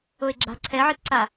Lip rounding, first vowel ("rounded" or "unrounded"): rounded